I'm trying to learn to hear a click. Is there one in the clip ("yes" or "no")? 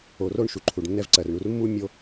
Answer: yes